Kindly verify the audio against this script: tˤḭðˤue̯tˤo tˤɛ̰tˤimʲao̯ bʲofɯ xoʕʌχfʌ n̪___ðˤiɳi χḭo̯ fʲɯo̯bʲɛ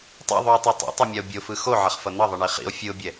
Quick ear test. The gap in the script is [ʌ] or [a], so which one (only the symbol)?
ʌ